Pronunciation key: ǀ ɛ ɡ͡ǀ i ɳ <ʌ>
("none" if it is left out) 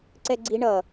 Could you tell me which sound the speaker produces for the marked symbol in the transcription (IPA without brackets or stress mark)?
ʌ